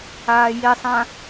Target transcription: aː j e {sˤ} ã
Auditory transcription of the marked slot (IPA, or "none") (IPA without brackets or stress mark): sˤ